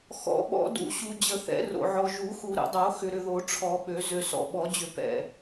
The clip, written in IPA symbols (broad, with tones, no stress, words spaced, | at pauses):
xɔ̰˨˩˦ɓɔ̰˨˩˦dṵ˨˩˦ɕu˨ d͡ʑə˨˩˦θɛ̰˨˩˦ro̰˨ʕɔ˨ ʒu˨˩˦xu˨ ɾə̰˨˩˦dˤo˨˩˦ xʏ˨ɾʏ˨ðo˨˩˦ ʈ͡ʂʰɔ˨˩˦ɓø˨˩˦ zø˨sɔ̰˨ɓɔ˨˩˦d͡ʑʏ˨˩˦ pɛ̰˨